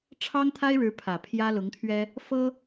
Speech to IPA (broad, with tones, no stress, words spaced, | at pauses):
ʈ͡ʂʰɑ˥ŋt̪ʰa˥ɪ̯ɻɻ̩˧˥ pʰä˨˩pʰjä˥lʊ˧˥ŋt̪ʰɥɛ˥ | fɤ˥